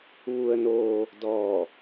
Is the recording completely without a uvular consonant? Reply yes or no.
yes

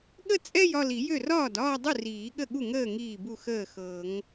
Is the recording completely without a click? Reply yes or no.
yes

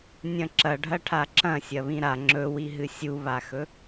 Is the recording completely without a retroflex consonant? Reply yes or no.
no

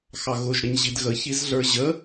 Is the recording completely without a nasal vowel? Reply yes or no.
yes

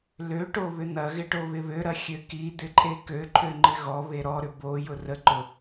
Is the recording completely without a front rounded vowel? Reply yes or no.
no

